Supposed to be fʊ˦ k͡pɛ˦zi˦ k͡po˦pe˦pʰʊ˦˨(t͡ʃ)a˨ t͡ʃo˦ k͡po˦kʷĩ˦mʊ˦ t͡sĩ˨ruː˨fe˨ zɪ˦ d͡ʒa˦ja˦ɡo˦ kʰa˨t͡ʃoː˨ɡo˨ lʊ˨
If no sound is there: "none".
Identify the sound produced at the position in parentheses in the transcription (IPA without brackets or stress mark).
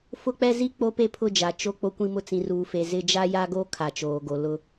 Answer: d͡ʒ